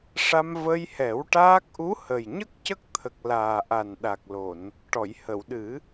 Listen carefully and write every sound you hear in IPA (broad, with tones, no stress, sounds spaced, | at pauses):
ʂ a˧ m v ə˧ j h ɛ˨˩˦ w ʈ aː˦˥ k̚ ʔ u˧˥ h ə˨˩ j ɲ ə˦˥ k̚ c ə˦˥ k̚ t̪ʰ ə˨˩ k̚ l aː˨˩ ʔ a˨˩ n ɗ a˨˩ k̚ l o˨˩˨ n | ʈ ɔ˨˩˨ j h ə˨˩˨ w ɗ ɨ˨˩˦